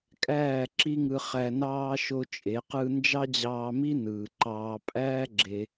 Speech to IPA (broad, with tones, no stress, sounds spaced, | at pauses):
kʼ æː˦˨ ǁ i˦ ŋ ɯ˧ χ æ˧ n ɑː˦ ʃ o˦ t͡ʃʼ e˨˦ q ɯ˦ n d͡ʒ ɑ˦ d͡ʑ ɑː˧ m i˦ n ɯː˨ ǃ ɑː˧ pʼ æː˦ ɡ͡ǁ e˧